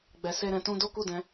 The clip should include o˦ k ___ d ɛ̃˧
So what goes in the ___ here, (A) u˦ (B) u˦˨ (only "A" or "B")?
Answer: B